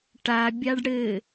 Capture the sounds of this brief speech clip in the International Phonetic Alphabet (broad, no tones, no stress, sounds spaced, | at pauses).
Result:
ʈ a bʲ a ɖ ɽ ɘ